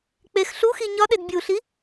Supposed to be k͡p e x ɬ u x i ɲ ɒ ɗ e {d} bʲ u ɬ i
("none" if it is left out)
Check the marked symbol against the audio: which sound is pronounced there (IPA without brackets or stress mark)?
d